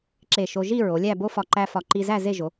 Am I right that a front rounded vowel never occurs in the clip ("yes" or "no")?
yes